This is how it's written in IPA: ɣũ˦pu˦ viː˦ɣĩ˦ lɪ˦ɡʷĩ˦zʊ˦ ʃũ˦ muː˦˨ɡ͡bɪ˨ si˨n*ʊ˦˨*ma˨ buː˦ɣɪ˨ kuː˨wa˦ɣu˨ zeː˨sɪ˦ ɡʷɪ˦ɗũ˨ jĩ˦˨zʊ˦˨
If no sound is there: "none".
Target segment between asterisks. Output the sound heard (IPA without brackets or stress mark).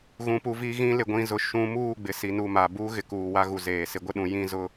u˦˨